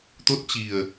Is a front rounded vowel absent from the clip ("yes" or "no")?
yes